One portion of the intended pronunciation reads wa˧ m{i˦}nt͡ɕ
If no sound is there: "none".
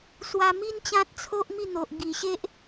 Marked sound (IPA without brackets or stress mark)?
i˦